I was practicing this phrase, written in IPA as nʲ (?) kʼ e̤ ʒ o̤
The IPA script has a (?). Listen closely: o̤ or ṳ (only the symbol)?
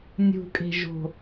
ṳ